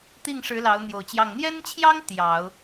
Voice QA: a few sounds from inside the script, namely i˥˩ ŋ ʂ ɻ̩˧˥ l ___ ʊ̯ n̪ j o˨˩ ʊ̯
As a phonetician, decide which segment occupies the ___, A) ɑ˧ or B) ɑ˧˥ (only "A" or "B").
B